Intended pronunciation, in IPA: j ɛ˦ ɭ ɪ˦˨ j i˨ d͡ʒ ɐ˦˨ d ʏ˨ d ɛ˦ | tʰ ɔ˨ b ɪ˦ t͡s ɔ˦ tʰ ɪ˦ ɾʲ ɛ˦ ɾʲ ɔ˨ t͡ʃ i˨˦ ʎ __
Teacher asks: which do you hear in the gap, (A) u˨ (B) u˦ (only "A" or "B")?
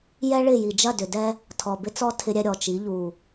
A